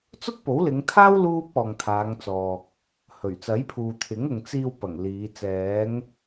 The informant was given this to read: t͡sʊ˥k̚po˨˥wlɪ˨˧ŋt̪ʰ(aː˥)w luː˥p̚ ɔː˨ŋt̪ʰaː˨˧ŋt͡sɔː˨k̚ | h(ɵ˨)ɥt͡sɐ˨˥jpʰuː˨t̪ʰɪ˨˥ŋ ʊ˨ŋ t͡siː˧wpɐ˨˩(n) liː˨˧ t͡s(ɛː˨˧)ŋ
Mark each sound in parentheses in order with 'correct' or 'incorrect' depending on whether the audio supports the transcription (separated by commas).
correct, incorrect, incorrect, correct